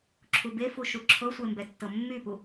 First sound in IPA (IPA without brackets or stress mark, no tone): ǁʰ